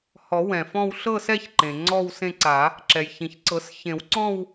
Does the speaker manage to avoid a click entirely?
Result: no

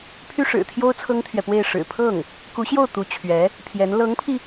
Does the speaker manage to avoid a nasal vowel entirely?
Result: yes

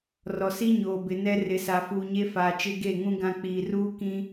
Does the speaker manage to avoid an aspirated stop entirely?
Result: yes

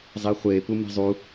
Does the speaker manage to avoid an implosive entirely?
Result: yes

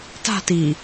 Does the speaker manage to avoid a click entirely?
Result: yes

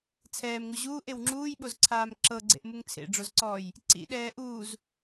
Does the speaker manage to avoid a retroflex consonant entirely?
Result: no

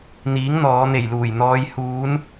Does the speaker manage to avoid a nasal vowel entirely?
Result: yes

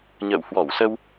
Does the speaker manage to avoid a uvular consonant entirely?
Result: yes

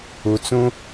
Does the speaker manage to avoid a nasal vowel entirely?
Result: no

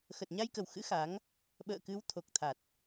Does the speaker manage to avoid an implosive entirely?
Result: no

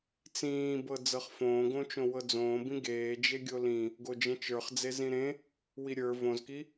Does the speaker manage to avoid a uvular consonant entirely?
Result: no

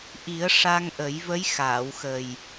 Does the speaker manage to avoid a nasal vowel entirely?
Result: yes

